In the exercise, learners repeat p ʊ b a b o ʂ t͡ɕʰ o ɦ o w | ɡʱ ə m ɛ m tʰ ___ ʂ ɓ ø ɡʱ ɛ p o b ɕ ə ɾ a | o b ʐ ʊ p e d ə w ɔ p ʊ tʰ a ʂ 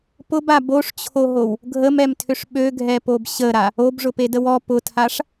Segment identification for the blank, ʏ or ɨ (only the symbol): ʏ